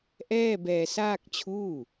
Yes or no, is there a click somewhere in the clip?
no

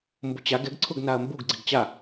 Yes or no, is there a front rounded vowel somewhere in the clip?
no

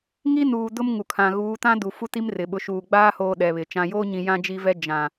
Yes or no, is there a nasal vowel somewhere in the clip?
yes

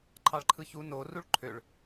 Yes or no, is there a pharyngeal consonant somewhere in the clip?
no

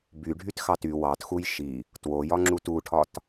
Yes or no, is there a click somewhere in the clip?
yes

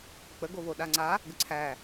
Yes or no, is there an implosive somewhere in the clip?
yes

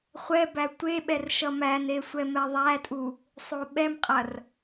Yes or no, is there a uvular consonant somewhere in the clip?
yes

